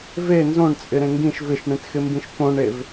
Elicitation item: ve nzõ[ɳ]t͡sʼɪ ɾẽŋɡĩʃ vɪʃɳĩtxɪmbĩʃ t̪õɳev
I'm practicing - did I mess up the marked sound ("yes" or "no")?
no